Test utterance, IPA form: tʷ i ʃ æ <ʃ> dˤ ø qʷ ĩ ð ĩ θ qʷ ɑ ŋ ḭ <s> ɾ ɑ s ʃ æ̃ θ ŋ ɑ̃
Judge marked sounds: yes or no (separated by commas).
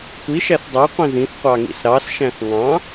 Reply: no, yes